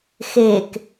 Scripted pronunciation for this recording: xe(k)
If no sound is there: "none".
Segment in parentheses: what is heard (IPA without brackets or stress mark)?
k